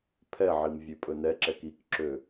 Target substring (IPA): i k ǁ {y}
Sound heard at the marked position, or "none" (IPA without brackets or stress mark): ø